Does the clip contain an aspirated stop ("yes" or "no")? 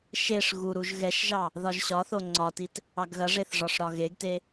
no